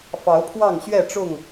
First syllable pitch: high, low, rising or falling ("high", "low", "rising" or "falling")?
rising